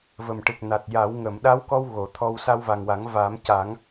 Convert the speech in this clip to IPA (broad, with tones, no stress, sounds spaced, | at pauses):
v ə˨˩ m ʈ ɨ˨˩ k̚ n a˨˩ t̚ j a˨˩˦ w ŋ ə˨˩˨ m ɗ a˧˥ w k ɔ˧ w ɣ o˨˩˦ t̪ʰ ɔ˧ w s a˧ w v a˨˩ ŋ w a˨˩˦ ŋ v aː˨˩˦ m c a˨˩˦ ŋ